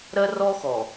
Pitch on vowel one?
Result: high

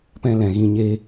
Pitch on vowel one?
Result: high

